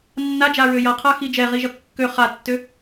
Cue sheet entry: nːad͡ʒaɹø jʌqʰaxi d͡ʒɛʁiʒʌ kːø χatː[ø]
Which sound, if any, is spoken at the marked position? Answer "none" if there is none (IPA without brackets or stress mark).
ø